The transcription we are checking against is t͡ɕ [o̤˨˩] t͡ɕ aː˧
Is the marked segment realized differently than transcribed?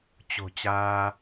no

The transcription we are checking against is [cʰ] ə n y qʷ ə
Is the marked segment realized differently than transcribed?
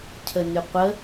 no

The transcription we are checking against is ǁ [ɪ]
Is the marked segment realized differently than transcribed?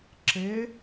no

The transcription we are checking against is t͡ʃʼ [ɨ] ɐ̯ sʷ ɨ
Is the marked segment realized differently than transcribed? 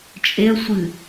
yes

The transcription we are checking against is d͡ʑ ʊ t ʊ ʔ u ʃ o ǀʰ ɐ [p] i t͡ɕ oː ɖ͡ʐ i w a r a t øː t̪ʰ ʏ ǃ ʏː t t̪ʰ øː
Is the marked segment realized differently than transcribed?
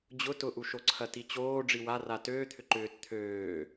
yes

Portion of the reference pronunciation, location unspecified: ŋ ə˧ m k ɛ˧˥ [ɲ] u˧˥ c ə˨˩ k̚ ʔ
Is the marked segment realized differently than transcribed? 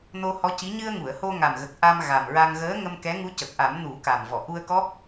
yes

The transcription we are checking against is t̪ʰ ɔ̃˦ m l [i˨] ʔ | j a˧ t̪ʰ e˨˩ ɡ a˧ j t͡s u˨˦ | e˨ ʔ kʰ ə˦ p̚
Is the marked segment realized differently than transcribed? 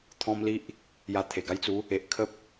yes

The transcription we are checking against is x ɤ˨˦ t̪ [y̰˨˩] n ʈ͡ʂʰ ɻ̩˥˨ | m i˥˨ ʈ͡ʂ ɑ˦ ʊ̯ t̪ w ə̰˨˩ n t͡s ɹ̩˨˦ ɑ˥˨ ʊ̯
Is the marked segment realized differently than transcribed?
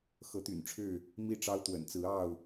no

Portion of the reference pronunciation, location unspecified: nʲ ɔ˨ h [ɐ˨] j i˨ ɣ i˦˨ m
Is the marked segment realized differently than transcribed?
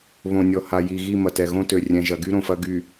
yes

